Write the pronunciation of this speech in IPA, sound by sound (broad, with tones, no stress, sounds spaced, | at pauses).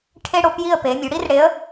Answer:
ʈʰ e˥ ɽ o˧˥ p j i˥˧ ə̯ p e˩˧ mʲ u˩˧ ɽ i˥ r ɽ e˧˥ ə̯